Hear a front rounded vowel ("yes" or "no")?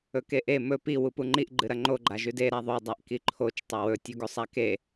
no